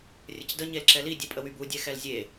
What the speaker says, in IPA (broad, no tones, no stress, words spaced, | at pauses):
rʲəcdə ɲelǁɛli dʲɛpʼəwybu dʲɛxɛlzʲe